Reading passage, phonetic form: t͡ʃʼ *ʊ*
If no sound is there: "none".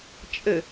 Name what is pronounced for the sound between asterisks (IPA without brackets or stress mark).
ə